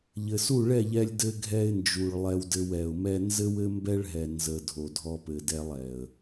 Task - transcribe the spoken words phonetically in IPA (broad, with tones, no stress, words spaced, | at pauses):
ʎɘ˨su˦˨ ɭɛ˦˨ʎɛ˧lʲ dɘ˧ɡʱɛ˧ɪ̯nd͡ʒu˨ɭ lˠɛ˧wdɘ˧wɛ˨ʊ̯mɛ˦ nzɘ˦wɘ˦ mbɛ˦ɭɦɛ˨ nzə˨ dʱo˨dʱɔ˧pɘ˨ dɛ˧lˠɛ˨ə̯